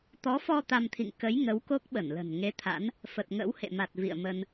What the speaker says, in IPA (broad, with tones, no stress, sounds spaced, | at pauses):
t̪ ɔ˨˦ f ɔ˧ t̪ a˧ m t̪ʰ ḭ˧˨ ŋ k ə˨˦ j ŋ ə˨˦ w k o˦˥ k̚ ɓ ə˧˩ n l ə̤˨˩ n ŋ e˨˦ t̪ʰ a̰˧˥ n | f ə˨˩ t̚ ŋ ə̰˧˥ w h ḛ˧˨ m a˨˩ t̚ v ḭ˧˨ ə̯ m ə˧ n